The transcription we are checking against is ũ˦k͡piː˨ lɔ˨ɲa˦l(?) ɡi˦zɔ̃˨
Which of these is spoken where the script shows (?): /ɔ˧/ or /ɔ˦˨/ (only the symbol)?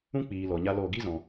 ɔ˦˨